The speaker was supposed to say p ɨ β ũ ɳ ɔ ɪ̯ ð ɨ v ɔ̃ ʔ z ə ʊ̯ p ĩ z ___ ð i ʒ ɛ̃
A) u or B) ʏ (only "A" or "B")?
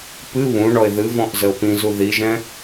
A